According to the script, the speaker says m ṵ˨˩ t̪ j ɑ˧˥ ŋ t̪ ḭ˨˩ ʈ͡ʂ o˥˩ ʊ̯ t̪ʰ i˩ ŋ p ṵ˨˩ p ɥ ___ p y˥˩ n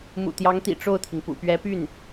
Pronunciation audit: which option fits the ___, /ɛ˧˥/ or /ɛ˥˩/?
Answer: ɛ˧˥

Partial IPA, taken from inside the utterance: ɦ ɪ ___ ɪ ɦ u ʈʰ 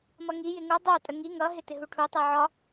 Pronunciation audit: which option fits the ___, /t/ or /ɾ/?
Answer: t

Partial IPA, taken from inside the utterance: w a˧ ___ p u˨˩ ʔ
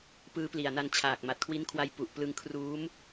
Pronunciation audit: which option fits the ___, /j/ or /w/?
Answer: j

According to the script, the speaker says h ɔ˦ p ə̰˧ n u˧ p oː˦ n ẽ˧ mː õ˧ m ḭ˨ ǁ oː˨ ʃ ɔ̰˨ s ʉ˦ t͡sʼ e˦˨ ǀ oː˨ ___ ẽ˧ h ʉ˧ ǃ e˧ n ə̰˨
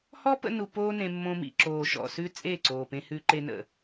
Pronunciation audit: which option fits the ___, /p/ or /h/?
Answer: p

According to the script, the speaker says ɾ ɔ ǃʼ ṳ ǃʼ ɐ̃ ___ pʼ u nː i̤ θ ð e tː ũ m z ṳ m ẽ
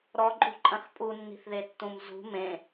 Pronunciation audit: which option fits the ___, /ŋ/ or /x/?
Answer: x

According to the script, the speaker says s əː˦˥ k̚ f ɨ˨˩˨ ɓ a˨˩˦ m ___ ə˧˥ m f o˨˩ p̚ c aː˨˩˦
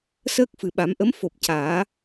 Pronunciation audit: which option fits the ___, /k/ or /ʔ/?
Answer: ʔ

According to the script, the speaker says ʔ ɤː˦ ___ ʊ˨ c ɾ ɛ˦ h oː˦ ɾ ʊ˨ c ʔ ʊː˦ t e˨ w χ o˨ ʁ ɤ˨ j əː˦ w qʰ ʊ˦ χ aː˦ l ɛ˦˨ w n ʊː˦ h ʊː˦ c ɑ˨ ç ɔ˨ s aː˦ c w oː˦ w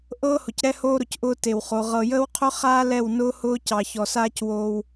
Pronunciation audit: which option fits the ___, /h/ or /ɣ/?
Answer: h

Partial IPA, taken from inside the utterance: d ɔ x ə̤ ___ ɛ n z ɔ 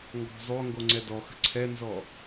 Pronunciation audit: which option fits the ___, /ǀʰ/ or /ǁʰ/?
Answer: ǀʰ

